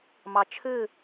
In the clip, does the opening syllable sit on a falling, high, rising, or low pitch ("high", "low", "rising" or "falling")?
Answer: low